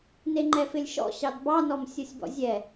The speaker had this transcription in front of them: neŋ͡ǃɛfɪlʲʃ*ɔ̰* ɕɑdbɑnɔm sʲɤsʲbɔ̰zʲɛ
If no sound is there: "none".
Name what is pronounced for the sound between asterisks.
ɔ̰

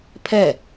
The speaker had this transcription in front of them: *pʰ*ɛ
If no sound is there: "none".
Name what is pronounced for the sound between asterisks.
pʰ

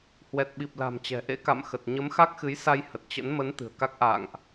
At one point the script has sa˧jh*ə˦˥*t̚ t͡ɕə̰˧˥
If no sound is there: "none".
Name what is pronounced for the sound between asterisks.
ə˨˩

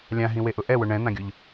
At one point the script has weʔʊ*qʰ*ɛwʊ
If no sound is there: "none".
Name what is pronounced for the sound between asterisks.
ʔ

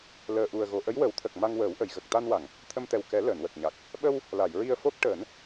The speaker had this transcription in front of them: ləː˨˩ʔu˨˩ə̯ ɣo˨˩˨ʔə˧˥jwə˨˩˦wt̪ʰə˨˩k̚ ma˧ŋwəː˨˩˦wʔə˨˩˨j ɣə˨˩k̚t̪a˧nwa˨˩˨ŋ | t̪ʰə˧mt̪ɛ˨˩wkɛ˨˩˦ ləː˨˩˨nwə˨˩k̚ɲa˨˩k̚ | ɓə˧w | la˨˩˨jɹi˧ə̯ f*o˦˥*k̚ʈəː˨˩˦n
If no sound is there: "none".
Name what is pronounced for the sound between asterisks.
o˦˥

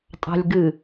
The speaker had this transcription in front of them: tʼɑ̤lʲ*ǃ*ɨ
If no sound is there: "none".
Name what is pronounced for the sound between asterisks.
ɡ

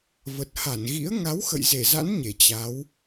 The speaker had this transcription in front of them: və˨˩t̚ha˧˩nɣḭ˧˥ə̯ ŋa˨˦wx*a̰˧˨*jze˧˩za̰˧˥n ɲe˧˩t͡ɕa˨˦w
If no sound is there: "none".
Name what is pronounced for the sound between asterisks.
ə̰˧˨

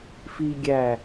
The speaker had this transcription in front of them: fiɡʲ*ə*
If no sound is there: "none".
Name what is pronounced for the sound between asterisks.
æ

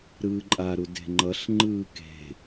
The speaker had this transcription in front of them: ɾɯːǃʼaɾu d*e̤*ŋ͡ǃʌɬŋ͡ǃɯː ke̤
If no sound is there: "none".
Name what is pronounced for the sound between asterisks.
e̤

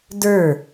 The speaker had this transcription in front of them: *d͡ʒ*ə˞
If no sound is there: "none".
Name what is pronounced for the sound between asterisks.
d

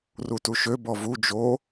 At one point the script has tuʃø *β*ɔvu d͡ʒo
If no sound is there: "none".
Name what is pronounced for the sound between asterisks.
b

